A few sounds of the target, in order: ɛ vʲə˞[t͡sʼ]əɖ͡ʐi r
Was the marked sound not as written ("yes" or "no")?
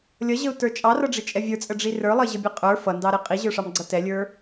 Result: no